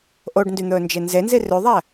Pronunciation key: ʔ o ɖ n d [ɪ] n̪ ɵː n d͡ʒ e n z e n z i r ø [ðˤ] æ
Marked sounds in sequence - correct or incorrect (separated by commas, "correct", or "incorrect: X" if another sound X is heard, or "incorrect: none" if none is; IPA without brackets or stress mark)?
incorrect: y, correct